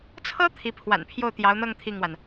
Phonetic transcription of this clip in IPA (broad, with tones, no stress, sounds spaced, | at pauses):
t͡sʰ ɤ˥ t̪ʰ i˧˥ pʰ w a̰˨˩ n pʰ j o˥˩ ʊ̯ t̪ j ɑ˧˥ ʊ̯ n̪ ɤ˥˧ ŋ t̪ʰ i˥˩ ŋ w a˩ n